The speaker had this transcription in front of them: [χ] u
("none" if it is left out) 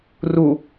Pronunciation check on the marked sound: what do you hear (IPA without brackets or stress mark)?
r